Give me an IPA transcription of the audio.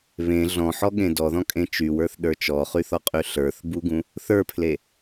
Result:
β ẽ ɮ ɔ̃ ħ ɔ ɠ ẽ d ɔ ð ɔ̃ kʼ ẽ t͡ʃ y w ə˞ θ ɗ ə˞ t͡ʃ ɔ χ y θ ɔ qʼ y ɬ ə˞ θ b u ɡ ũ | θ ə˞ pʰ l e

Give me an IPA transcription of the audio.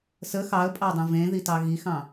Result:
s ə x ɑ ə̯ pʼ ɑ dˤ ə̃ v ẽ ð i t ɑ ɣ i x ɑ̃

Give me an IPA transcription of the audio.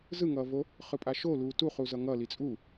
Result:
z ɯ ŋ ʌː v o | χ ɯ pʼ a ʃ o l uː t u χ u z ʌ ŋ ʌ l i t͡sʼ u

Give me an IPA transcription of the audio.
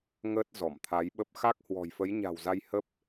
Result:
ŋ əː˦˥ t̚ z ɔ˧˩ m t̪ʰ a˨˦ j ɓ ə˦˥ p̚ x a˦˥ k̚ h w ɔ̤˨˩ j f ə˨˦ j ɲ a̤˨˩ w z a˧ j h ə˦˥ p̚

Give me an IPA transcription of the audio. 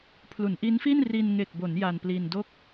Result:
pʰ l u˩˦ n ʔ i˦˥ n f i˥˩ n r i˧ n ŋ e˨˩ k̚ b o˩˦ n j a˧ n p l i˧ n d o˥˩ k̚

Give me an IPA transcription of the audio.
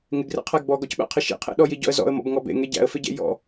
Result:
ŋ ɪ ɡ r ḛ qʰ æ ɡ b ɔ ɡ ɔ c ɓ æ̰ qʰ ɪ ʃ ḭ qʰ ḛ ɗ ɔ j i ɟ ɔ̰ ə̯ z ɔ̰ ə̯ m ɔ̰ b ŋ ɔ b ḛ ŋ e ɟ æ̰ ə̯ f ɪ ɟ ḛ j ɔ̰

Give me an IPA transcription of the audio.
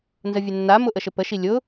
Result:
n z ə vʲ ɘ nː a m ʊ ʔ ə ʃ ɘ p ə ʃ i lʲ ʊ

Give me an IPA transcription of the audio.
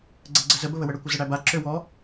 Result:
ɡ͡ǀ ə ɡ͡ǀ ə z ə b ə β ə w ə ɽ ə kʷ ə z ə ɽ æ b a ǁ ø w ɔ

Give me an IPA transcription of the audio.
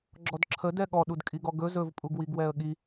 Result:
ɡ͡ǁ ɔ d ǁʰ ə d ɛ ɠ ɔ ɗ u d kʼ i ɡ ɔ ɡ ɵ z ɵ v pʼ u ɡ w i ɡ w ɛ ə̯ ɠ i

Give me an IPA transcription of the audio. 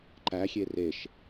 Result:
ǃ æ xʲ e r e ʃ

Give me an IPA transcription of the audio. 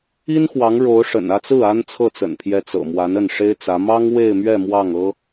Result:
i˥ n x w ɑ˧˥ ŋ ɻ o˧˥ ʊ̯ ʂ ə̰˨˩ n ä˥˧ t͡s ɹ̩˥˩ a˥ n t͡sʰ ɤ˥˩ t͡s ə̰˨˩ n pʰ j ɛ˧˥ t͡s ɤ̰˨˩ m w a˧˥ n ə˥˩ n ʂ e˥ ɪ̯ t͡s ä˧˥ m ɑ˥ ŋ w e˥˧ ɪ̯ m ɥ ɛ˥˧ m w ɑ˥˩ ŋ ɤ˥

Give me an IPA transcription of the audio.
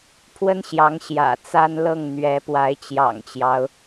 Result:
pʰ w ə˥ n ɕ j ɑ˧˥ ŋ ɕ j ä̰˨˩ t͡s a˥ n l ɤ˥˩ ŋ n̪ ɥ ɛ˧˥ p w a˧˥ ɪ̯ t͡ɕ j ɑ̰˨˩ ŋ t͡ɕ j ɑ˦ ʊ̯

